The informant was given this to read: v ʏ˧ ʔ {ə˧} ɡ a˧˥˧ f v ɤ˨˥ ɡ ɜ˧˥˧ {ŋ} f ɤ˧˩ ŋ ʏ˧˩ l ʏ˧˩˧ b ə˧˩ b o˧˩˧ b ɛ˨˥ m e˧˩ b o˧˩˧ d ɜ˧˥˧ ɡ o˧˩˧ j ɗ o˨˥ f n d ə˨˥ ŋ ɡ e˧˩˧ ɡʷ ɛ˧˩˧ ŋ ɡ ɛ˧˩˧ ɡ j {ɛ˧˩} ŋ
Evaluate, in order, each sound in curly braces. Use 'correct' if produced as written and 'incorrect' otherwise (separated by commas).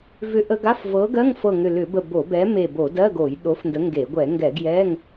correct, correct, incorrect